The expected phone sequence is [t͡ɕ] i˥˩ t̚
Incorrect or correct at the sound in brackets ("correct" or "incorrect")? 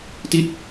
incorrect